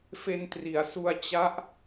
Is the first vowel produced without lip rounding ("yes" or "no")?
yes